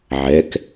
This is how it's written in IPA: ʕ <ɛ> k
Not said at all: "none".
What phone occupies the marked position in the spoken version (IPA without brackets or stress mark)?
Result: ɛ